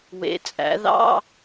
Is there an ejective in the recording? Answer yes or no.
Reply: yes